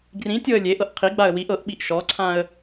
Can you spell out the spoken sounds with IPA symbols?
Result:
ɡrĩtʲɤə̯ lʲe ʔɤʔqʰiɡ͡baə̯ wiʔ ɤʔɓiʔ ʃɔǀʰãə̯

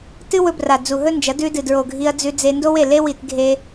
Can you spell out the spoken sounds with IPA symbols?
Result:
tɨ˦wɵ˧bra˨ d͡zu˨ɦɵ˦nd͡ʒɐ˨˦ dʉ˧dɨ˨dɹo˨ ɡʱi˧ɐ̯d͡zʉ˧ d͡ze˧ndo˦we˦˨ le˧wi˨t ɡʱe˧

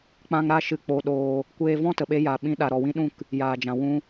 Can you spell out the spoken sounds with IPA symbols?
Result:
k͡pã˦ŋ ɾa˧ ʃɨ˧ k͡po˧ɗoː˧ | kʷeː˧vɔ̃˦tə˨ɓe˧ ja˨ ɓĩ˧ ɗa˨ɾɔ˨wĩ˧ɗũ˦˨k | jaː˨d͡ʒã˨ wũ˧

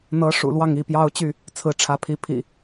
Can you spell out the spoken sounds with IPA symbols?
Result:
n̪ɤ˨˦ ʂṵ˨˩ lwɑ˥˨ŋi˥˨pjɑ˦ʊ̯t͡ɕy˥˨ | t͡sʰɹ̩˨˦ʈ͡ʂʰä˨˦pʰi˨˦pʰḭ˨˩

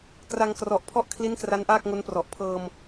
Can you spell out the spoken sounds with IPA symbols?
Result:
kra˧ŋkrɔ˨˩ʔpʰɔ˥˩ʔkʰli˦˥n kra˦˥nʔaː˥˩k̚ŋo˦˥nprɔ˨˩ʔ pʰɤː˧m

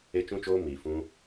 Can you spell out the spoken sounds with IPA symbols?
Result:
e˧t͡ʃũ˧t͡ʃoː˧ miː˨fũ˧

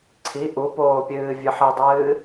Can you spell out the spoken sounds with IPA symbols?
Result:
ǀʰi ʔupoːpʲɨː vʲɨħɨdˤɨː

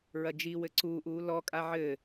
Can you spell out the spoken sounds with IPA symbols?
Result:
ɹɐd͡ʒi wɘǀuːʔ uːlɔ kʼaʕɘ

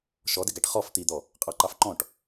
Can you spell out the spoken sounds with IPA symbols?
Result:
ʃɔdɪɡæʈ χɔf t̪id̪ɔ | qʼɑǃɑfǃɔ̃ʈ

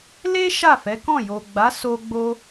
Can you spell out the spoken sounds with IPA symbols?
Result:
le˦ ʃa˦˨fɛ˨˦kɔ̃˦˨ jo˨ ɡ͡ba˨˦ so˧ ɡ͡bo˦

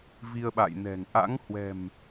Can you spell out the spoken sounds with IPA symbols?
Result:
vi˧ə̯ɓa̰ː˧˨jnɛ̤˨˩ŋ ʔa̰˧˥ŋhwɛ̤˨˩m

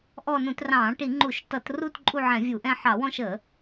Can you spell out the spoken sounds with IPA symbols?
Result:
ʔɔ˦˨ nũ˧˩˧trɑ̃ː˧˩˧ʈi˧˩˧ ŋ͡ǃu˧˩˧ʃtʌ˧˩˧t ru˦˨t ǃʼu˦˨ʕɛ̃˧˩˧vʲu˧˩˧ʔɛ̃˦˨ ħɑ˧˩˧wɔ̃˦˨ʃə˧˩˧

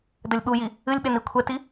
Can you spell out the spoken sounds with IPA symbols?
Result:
dɘlʲɓuji | ɨlʲɓen ikʷʰɛti

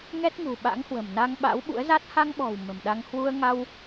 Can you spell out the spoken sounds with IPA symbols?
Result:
ŋɛ˦˥t̚ŋṳ˨˩ ɓa̰˧˥ŋhwə̤˨˩mna˧ŋɓa̰˧˥w ɓṵ˧˥ə̯za˦˥t̚ ha˧ŋɓɔ̤˨˩w mə̤˨˩mɗa˧ŋ hwu˧ə̯ŋa˧w

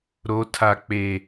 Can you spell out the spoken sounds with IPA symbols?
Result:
ɾo˨˦tʰa˨ k͡pe˨

